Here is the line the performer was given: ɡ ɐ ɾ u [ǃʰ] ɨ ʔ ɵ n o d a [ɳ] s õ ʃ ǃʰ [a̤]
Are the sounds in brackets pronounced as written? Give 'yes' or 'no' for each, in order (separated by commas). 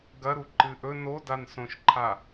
no, no, no